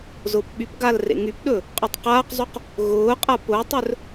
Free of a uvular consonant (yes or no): no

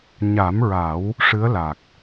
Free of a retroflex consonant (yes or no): no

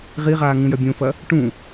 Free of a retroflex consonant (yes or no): no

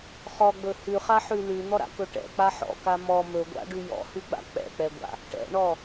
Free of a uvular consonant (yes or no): no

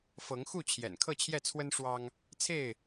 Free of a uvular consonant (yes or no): yes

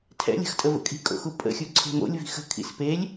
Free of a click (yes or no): no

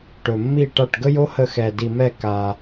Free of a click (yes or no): yes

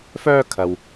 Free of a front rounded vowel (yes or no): no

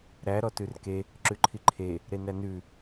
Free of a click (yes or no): no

